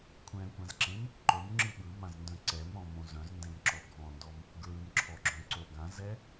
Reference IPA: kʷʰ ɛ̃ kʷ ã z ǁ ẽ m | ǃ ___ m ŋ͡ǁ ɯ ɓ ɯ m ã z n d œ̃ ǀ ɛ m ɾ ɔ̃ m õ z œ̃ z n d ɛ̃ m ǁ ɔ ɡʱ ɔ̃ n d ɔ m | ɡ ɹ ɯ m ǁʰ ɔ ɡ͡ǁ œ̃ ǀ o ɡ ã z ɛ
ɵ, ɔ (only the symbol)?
ɵ